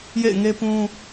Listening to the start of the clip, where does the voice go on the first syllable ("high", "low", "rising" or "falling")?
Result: falling